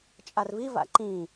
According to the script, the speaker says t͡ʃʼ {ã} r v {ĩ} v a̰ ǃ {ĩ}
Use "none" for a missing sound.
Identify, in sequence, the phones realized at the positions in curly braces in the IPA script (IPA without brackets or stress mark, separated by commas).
a, i, ĩ